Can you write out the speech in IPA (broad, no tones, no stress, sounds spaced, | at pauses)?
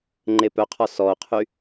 ŋ͡ǃ e p œ qʰ ɔ s ɔ o̯ qʰ y